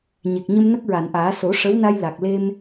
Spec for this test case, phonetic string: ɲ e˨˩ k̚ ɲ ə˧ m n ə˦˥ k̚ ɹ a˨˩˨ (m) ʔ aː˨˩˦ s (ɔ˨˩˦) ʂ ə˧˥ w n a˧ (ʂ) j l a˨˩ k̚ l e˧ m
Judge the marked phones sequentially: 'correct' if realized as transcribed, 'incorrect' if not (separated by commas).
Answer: incorrect, incorrect, incorrect